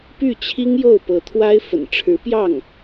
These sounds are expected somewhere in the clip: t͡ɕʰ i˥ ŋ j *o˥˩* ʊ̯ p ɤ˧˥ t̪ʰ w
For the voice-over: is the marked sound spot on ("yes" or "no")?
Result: yes